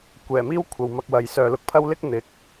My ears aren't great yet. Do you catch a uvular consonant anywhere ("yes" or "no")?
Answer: no